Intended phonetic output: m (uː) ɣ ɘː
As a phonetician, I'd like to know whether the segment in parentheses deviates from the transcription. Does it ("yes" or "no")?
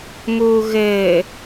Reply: no